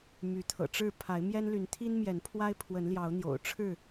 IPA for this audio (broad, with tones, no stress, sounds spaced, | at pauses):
m y˨˦ t̪ʰ ɤ̰˨˩ ʈ͡ʂ ɻ̩˥˨ pʰ a˨˦ ɪ̯ m j ɛ˦ n l y˨˦ n t̪ʰ i˦ n m j ɛ˨˦ n pʰ w a˦ ɪ̯ pʰ w ə˨˦ n l j ɑ˨˦ ʊ̯ n̪ j o̰˨˩ ʊ̯ ʈ͡ʂʰ ɻ̩˥˨